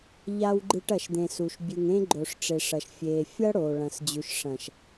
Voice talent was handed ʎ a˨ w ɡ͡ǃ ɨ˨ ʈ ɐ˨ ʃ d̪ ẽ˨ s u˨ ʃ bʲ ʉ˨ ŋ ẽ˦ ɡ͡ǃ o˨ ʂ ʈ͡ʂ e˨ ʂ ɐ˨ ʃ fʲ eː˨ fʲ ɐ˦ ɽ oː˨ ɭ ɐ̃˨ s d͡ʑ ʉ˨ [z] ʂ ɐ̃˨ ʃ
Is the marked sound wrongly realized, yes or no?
yes